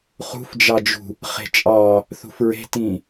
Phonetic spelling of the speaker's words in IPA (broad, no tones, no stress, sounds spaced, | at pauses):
χ ṳ f d͡ʒ ɑ d͡ʒ ṳ | χ e̤ t͡ʃʼ ɑ | θ ṳ f ɹ e̤ t ĩ